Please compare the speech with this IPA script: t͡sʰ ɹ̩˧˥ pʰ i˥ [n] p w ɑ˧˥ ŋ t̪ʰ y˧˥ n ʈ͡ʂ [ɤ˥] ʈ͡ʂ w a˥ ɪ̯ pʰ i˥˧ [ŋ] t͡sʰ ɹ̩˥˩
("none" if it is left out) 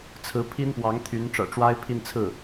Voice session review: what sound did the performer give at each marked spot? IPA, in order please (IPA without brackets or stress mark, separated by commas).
n, ɤ̰˨˩, n